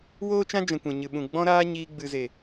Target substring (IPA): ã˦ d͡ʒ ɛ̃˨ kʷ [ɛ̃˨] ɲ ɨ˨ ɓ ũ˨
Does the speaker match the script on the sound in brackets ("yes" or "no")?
yes